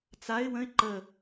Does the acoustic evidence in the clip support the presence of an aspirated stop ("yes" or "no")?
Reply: no